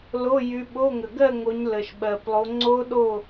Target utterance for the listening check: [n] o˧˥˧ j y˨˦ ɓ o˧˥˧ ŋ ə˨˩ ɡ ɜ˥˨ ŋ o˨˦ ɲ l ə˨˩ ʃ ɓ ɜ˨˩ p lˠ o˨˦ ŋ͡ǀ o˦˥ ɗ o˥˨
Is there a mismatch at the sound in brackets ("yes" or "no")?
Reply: yes